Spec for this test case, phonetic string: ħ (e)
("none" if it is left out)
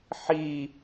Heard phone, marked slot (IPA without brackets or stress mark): i